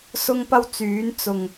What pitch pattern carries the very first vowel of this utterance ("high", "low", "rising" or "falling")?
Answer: high